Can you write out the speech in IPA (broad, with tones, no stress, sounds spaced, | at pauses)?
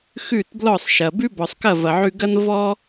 x ʉ˥˩ t b l ɔ˥˩ sˤ ʃ ɐ˩ b ʉ˥ b ɔ˩ sˤ k ɐ˥˩ v ɐ˩ ʕ ʉ˧ ɡ ɐ˥ n v ɔ˥